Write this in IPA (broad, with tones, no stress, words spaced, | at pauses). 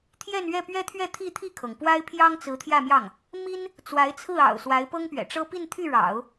t̪ʰjɛ˥˧nɥɛ˥˩pɥɛ˥t̪ʰɥɛ˥˧ t̪ʰi˥˧t̪ʰi˥˩kʰɤ˩ŋ pwa˥ɪ̯pʰjɑ˥ŋt͡sɹ̩˧˥ t̪ʰjä˥˧mjɑ˥˩ŋ | mi˥n | t͡swa˧˥ɪ̯t͡sʰɹ̩˥˩ɑ̰˨˩ʊ̯ swa˧˥ɪ̯pɤ˥ŋpɥɛ̰˨˩ʈ͡ʂɤ˥ pi˥˧nt̪ʰy˥˩ɻɑ̰˨˩˦ʊ̯